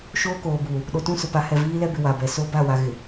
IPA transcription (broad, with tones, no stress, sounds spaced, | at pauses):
ʃ oː˦ k oː˨ b uː˨ | ɗ o˨ t ũ˦˨ s ʊ˨ p a˨˦ h ɛ˨ v iː˦ l ɛ˦ b ɪ˨ w a˨ b ɛ˨ s o˦ b a˦˨ w a˨ ɣ ɪ˨